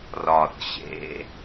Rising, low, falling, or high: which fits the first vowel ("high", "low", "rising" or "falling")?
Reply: low